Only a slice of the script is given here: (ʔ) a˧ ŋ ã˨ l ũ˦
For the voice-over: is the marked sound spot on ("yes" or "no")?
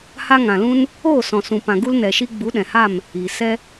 no